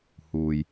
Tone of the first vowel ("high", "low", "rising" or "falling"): low